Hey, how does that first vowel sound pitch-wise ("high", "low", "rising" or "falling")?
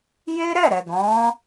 high